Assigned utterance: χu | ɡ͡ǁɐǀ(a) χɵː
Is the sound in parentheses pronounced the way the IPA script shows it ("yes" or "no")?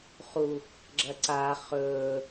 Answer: yes